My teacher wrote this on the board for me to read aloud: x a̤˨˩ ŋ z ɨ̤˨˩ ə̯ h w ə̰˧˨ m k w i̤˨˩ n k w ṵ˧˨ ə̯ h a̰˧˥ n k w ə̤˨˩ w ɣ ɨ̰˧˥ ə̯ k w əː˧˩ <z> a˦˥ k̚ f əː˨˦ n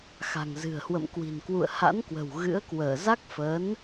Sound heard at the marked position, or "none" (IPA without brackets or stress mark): z